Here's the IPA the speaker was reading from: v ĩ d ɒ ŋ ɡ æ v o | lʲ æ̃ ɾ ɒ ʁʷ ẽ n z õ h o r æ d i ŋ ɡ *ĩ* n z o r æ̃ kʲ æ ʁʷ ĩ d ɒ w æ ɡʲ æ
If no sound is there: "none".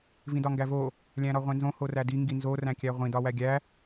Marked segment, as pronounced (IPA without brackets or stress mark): i